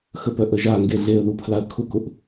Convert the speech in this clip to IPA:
x ə p œ ʔ ə ʒ a ŋ ɡ e ɮ e ə̯ ð u pʰ l a ə̯ kʰ ʊ k ʊ ʔ

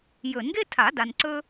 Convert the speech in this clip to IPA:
j ɵ˨˩˦ n ɡ e˥ tʰ a˨˩˦ d a˨ n ǀ ɵ˥

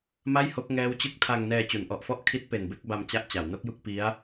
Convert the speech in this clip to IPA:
m a˥˩ j h o˦˥ k̚ ŋ ɛː˦˥ w t͡ɕ ɯ˦˥ k̚ tʰ a˧ ŋ n ɛː˧ t͡ɕ u˩˦ n ʔ ɔ˨˩ ʔ f ɔ˥˩ ʔ kʰ i˦˥ t̚ p e˨˩ n b e˥˩ k̚ b a˧ m t͡ɕ a˥˩ ʔ t͡ɕ a˩˦ w n o˦˥ k̚ j u˥˩ k̚ p i˦˥ a̯

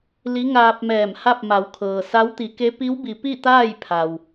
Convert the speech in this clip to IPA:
l i˧˥ ŋ aː˧ p̚ m ɛː˧˩ m h a˥˨ p̚ m a˩˧ w kʰ ɤː˩ s a˧˥ w t̪ i˩˧ k e˧˥ p i˧˥ w b i˩˧ p i˥˨ t̪ aː˥˨ j pʰ a˩ w

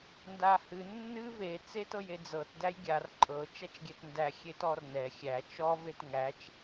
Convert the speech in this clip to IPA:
n d a h ɨ nː ɨ v e t͡s e t ɤ j e d͡z ɤ t d æ j ɡʲ a r ǃʼ ɤ t͡ʃ æ t͡ʃ ɡʲ ɛ t n d æ xʲ e t ɔ r n ɛ xʲ æ t͡ʃ ɔ v e t ŋ æ t͡ʃ

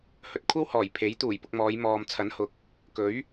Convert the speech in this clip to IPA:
h ɵ˨ t̚ kʷʰ ɐ˥ w h ɔː˨˩ j pʰ e˨˥ j t̪ uː˨˩ j p ʊ˧ k̚ m ɔː˨˧ j m ɔː˨ m t͡sʰ ɐ˨˥ n h ʊ˨ k̚ | k ɵ˨˥ ɥ

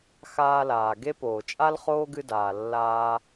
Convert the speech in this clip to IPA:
x aː˧ l aː˩ ɡ e˥ p oː˩ t͡ʃʼ a˥ l χ oː˥ ɡ ɨ˧ d aː˩ lː aː˧

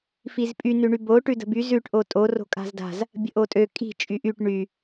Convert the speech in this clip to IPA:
f i z pʼ y n ʉ ɳ y b o ʈ ʉ d ə̤ b y z ʉ ʈ ʔ o tʼ o r o̤ kʼ a̤ z d a̤ z | bʲ ə̤ ʔ o tʼ ø kʼ i̤ t͡ʃʼ y ʔ y ʈ ɳ y

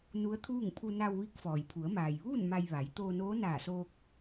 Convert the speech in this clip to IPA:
n u˧˥ ə̯ t̪ʰ uː˥˨ ŋ pʰ u˧ n a˧ w ʋ i˧˥ k̚ f ɔː˩ j pʰ u˩˧ ə̯ m aː˩ j ʋ uː˥˨ n m a˧ j ʋ a˩˧ j t̪ oː˧ n oː˧˥ n aː˧˩ s oː˧ k̚

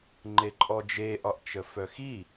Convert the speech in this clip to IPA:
ŋ͡ǃ e ǃʼ ɔ d͡ʒ e ʔ ɒ ʔ t͡ʃ ə f œ x i

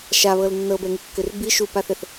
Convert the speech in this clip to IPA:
ʃ a β ɤ l nː ɤ b ɛ ŋ i kː ʏ r b i ʃ u p a θ ɛ θ

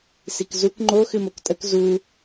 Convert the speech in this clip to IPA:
s i k z u k ŋ͡ǃ o x ɨ m o k tʼ ə k z u

